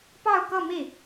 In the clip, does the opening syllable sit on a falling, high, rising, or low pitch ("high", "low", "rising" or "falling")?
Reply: falling